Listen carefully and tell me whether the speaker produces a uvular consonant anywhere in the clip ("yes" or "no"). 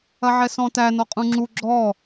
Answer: yes